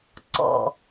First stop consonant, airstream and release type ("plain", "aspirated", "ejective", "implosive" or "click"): click